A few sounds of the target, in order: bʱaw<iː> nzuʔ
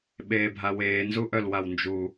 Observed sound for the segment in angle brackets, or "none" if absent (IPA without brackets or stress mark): eː